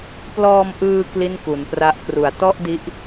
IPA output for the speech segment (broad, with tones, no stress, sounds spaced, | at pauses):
p l ɔː˧ m ʔ ɯː˧ k l i˥˩ n k u˩˦ n p r a˦˥ ʔ k r u˩˦ a̯ t ɔ˥˩ ʔ d i˦˥ ʔ